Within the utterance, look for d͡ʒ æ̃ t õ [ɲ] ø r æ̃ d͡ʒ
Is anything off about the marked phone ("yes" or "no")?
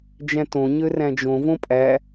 no